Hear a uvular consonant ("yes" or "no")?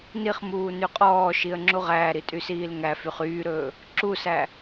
yes